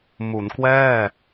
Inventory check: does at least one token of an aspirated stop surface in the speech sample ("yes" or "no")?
no